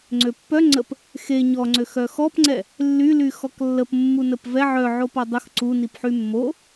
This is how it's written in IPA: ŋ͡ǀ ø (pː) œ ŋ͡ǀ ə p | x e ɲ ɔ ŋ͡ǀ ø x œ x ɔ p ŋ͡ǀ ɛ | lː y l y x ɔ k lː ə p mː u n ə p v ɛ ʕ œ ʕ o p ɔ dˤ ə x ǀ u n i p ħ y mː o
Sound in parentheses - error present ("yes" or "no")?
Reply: no